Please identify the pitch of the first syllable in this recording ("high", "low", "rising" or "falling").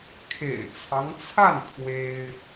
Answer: low